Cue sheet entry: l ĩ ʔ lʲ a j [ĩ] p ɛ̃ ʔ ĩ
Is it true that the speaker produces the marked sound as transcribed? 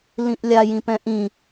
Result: yes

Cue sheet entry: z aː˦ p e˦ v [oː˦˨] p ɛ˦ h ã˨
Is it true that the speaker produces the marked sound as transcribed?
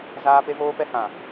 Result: no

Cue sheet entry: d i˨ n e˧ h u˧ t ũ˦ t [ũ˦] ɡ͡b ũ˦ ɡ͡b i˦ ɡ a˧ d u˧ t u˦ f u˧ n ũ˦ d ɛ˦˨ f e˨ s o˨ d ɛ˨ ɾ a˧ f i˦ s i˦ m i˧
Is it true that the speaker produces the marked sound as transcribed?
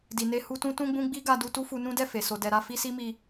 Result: yes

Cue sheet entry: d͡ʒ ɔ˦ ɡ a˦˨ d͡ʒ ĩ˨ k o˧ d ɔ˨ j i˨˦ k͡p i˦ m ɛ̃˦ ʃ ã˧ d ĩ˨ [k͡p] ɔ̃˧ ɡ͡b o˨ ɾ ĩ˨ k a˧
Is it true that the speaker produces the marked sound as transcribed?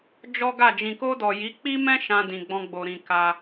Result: no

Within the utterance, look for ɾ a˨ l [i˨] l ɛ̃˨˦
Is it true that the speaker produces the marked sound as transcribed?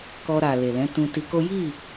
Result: no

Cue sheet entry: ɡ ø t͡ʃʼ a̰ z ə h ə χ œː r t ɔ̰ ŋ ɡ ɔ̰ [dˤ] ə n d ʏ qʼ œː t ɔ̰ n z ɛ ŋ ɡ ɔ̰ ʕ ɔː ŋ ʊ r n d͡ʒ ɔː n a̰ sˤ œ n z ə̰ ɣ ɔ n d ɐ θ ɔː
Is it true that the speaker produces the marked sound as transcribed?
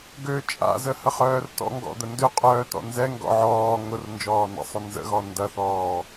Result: no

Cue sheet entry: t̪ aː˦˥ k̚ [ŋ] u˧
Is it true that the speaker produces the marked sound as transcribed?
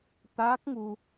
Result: yes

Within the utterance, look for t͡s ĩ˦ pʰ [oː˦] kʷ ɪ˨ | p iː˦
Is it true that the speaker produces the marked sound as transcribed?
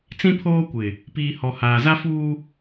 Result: yes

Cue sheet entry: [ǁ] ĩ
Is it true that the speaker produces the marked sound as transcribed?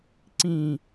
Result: no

